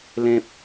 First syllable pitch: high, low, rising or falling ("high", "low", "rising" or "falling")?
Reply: high